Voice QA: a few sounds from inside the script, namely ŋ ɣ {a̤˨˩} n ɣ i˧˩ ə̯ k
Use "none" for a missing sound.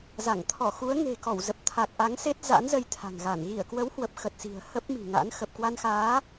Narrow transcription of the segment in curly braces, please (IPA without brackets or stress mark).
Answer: a˧˩